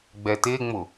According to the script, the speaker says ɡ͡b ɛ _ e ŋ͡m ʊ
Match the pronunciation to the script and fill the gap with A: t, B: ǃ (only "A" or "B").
A